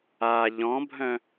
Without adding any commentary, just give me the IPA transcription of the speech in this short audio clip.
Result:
a ʎ ɔ̃ bʱ œ̃

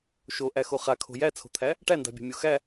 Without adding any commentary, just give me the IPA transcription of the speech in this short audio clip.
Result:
ʃ o ʔ æ x o χ a kʰ o̤ j æ t͡sʰ o̤ t̪ʰ æ | ʈ æ n d a̤ bʲ a̤ mʲ o x æ

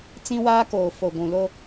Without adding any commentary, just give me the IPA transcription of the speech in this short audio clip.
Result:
t͡s ĩ˦ w aː˦ k oː˨ f o˨ ɡʷ ũ˨ l o˦

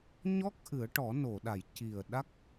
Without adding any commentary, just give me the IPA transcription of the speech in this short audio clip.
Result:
ɲ ɔ˦˥ k̚ ʔ ɨ˨˩˦ ə̯ ʈ ɔ˨˩˦ n o˨˩˨ ɗ a˨˩˨ j c i˨˩ ə̯ ɗ a˦˥ k̚

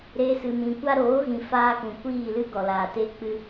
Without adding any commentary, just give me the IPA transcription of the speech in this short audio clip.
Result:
ɾ e˧ s ɨ˨ m ĩ˨ kʷ a˧ ɾ oː˨˦ ɣ ĩ˨ f aː˦ k ũ˨ kʷ iː˦˨ l ɨ˦ ɡ ɔ˨ l aː˨ t e˦ k͡p ɨ˧

